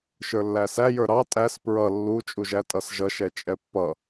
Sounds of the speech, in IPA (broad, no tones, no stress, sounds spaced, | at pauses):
ʃ ə˞ lː æ s æ j ə˞ ɾ ɑ tʼ æ s p ɹ ʌ lː u t͡ʃʼ u ʒ æ tʼ ʌ s ʒ ʌ ʃ ɛ t͡ʃʼ ɛ pː ʌ